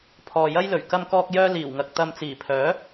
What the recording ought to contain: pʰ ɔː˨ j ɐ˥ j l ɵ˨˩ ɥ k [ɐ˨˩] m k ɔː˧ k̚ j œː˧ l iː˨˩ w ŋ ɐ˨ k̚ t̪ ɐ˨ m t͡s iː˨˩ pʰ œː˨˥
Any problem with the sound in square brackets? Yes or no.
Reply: yes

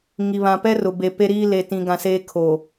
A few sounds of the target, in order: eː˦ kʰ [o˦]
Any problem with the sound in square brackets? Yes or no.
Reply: yes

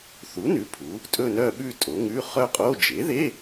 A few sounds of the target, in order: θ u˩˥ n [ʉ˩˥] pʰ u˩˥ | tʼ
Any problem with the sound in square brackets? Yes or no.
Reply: no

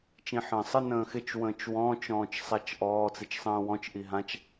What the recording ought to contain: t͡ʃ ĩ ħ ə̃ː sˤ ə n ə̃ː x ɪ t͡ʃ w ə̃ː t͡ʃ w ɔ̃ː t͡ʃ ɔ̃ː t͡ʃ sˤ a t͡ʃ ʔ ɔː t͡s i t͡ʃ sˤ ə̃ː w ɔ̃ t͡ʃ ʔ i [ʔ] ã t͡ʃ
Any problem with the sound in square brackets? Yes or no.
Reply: yes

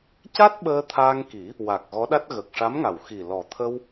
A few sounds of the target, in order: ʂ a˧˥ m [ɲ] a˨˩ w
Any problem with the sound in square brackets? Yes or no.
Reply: yes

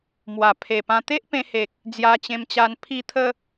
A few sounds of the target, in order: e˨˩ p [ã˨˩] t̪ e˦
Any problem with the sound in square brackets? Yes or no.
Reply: yes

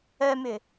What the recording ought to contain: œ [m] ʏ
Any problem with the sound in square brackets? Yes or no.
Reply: no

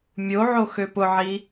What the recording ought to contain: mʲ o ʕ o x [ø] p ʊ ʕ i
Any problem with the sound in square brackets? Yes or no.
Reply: no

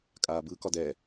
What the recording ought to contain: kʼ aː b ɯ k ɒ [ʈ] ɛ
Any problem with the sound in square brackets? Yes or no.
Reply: yes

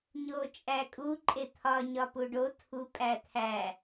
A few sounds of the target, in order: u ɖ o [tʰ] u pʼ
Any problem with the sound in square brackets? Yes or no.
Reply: no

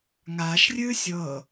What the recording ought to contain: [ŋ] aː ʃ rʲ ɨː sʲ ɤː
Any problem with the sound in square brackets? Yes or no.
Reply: no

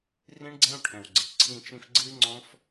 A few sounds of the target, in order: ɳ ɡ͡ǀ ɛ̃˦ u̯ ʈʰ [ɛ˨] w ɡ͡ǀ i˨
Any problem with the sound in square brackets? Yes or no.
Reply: yes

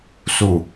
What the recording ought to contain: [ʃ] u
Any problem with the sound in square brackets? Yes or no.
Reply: yes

